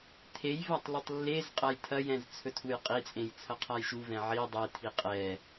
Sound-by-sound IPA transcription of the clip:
tʰej vatˤlutˤlːezqʼɐj tʰɐjɛ̃z t͡sʰɵtʰujqʼit͡sʼẽj t͡sʰɐqʰajʃuvɛ̃ ʕi dˤetʰi qʼɛ

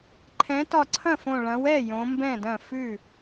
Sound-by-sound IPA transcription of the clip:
ǃʰɛ̃˨˦tɒ˧˩ ǀʰɐ̃˥˩fõ˧˩ ɭɐ̃˨˦wɛ˥˩ jõ˨˦mbɛ̃˥˩dɐ̃˥˩ fʉ˥˩

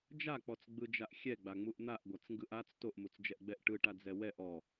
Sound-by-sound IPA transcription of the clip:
d͡ʒak͡pɔt͡sɡ͡bɯd͡ʒaʔ xʲɛɡ͡baŋ͡muʔ n̪aʔɡʷat͡sŋɡɯʔ at͡s toʔmut͡sd͡ʒɛʔɡ͡bɛʔ ʈɯʈad͡zɛ wɛʔ ɔ

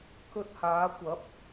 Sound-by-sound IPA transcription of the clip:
kɵ˧t̚haː˨˧kʷɐ˨˥p̚

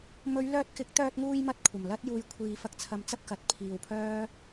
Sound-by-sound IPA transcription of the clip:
mɵ˨˧ɥlœː˧t̚kɪ˨˥k̚ t̪œː˧t̚ŋuː˧jmɐ˧t̚ kʷʰɐ˨˩mlɐ˥t̚juː˧j kʷʰiː˨fɐ˧k̚t͡sʰɐ˨˧m t͡sɐ˥p̚kɐ˨t̚ pʰiː˨wpʰœː˥

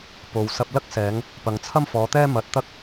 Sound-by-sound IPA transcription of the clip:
po˨wsɐ˧p̚ lɐ˥k̚sɛː˨˧ŋ | pɐ˨ŋt͡sʰɐ˥mfɔː˨˧t̪ɛː˥ mɐ˧t̚t̪ɐ˥k̚

